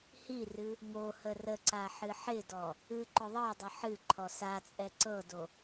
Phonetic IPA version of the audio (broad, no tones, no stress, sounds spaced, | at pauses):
h i r ɨ | ŋ o h ə r ə ǀ a ħ ɨ ħ ɪ d ɔ | ɨ ǃ ʊ ðˤ ɤ dˤ ə ħ ɨ ǃʰ ɔ s a t͡sʼ ɛ ǀ ɤ d o